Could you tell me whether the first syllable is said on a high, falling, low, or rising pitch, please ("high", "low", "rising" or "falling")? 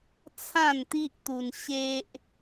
falling